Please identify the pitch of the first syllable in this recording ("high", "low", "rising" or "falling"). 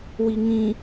low